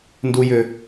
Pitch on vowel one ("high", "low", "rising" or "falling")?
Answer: low